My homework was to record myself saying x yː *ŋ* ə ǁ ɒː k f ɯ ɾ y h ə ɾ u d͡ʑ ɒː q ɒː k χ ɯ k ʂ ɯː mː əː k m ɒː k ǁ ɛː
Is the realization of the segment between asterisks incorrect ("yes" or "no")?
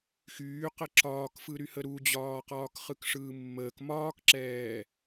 yes